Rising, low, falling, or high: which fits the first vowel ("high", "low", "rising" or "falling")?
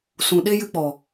low